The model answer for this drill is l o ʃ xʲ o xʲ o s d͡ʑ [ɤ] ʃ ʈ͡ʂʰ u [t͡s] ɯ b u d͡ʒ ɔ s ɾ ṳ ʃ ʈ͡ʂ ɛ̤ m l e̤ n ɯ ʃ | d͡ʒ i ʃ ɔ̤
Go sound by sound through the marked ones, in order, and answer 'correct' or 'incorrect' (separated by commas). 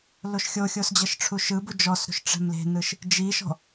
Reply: correct, incorrect